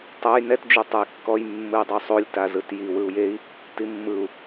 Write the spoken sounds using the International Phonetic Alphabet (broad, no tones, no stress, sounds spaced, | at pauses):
tˤ ɛ j n ɛ t d͡ʒ u tˤ e j kː ɔ j mː ɯ i̯ dˤ u sˤ o lʲ t a z ɯ t j i w ɯ u̯ j e i̯ | t i mː ɯ u̯